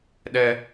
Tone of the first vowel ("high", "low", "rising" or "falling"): high